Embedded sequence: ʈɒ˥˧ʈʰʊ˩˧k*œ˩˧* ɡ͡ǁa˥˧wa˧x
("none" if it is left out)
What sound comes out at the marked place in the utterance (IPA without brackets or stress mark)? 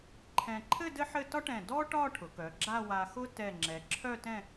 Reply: œ˩˧